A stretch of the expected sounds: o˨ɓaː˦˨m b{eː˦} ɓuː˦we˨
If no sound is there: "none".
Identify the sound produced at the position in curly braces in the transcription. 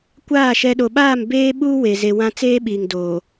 eː˦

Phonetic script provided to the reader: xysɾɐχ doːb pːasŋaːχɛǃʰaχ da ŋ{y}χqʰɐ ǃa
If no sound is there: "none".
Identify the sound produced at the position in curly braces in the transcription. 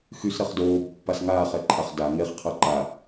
e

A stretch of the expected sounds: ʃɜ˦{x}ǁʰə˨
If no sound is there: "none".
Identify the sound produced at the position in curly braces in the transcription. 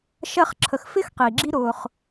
χ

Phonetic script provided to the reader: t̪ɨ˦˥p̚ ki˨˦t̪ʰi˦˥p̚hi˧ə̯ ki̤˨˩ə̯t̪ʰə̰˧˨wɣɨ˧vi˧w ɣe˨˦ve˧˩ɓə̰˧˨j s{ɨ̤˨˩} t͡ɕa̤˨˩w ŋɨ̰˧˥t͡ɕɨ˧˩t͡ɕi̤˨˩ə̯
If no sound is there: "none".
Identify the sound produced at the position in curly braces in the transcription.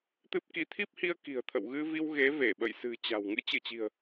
ɨ̤˨˩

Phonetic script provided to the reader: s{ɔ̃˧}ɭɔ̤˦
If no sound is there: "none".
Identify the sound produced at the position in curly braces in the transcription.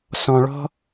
ɔ̃˧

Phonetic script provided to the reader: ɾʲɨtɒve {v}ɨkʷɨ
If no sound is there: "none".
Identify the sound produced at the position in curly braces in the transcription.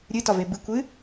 b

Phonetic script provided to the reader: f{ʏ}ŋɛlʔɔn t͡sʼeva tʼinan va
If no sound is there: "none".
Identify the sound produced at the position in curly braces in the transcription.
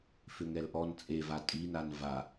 ʏ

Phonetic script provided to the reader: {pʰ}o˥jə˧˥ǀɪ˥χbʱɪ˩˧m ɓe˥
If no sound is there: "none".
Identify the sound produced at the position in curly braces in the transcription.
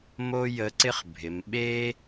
m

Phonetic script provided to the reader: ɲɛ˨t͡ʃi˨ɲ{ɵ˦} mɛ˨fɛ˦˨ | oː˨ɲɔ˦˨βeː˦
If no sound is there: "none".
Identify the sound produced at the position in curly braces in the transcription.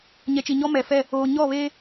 ɔ˦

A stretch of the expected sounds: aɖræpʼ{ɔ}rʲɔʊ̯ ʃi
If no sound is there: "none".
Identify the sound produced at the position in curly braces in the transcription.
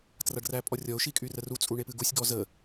ɔ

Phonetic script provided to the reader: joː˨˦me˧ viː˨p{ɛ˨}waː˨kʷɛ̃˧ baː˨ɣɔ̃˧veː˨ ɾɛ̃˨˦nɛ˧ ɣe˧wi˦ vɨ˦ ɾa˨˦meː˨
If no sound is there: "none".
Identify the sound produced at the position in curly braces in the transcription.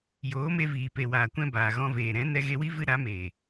e˨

